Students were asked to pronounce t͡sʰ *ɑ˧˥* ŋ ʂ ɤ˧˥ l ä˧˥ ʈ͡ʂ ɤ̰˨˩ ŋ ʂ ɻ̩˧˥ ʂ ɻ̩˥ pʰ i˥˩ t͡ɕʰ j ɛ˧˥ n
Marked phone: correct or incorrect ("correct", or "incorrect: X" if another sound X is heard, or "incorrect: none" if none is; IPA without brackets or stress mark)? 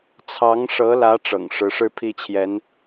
correct